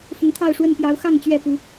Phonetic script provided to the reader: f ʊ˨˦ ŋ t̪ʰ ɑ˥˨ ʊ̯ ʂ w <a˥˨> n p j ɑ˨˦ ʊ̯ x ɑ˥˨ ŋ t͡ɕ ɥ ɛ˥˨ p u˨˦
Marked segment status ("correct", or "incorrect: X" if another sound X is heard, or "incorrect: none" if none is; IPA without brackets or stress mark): incorrect: ə˥˨